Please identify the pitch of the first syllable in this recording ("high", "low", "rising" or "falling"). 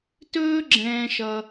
high